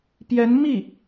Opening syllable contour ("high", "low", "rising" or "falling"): rising